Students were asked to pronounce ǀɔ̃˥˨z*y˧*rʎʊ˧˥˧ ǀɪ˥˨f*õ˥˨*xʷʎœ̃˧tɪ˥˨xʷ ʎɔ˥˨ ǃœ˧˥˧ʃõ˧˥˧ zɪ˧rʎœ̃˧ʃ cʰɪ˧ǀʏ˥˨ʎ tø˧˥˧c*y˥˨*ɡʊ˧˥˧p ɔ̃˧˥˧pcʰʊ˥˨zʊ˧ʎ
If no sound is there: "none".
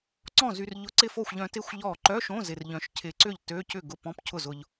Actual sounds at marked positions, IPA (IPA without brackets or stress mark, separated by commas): y˧, o˥˨, ʏ˥˨